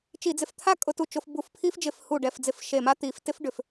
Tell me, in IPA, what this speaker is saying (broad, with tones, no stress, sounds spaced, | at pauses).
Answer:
t͡ʃ i˧˩˧ d͡z ɪ˧˩ f t̪ʰ a˥ kʼ ʊ˧˩˧ t u˧˩ t͡ʃ ʊ˧˩˧ f b u˧˩ f pʰ i˥ f d͡ʒ ɪ˧˩ f h u˧˩ ɖ ɛ˧˩ f d͡z ɪ˧˩˧ f ʃ e˧˩ m a˥ t̪ i˧˩˧ f t ɪ˥ f ɖ ʏ˧˩˧ f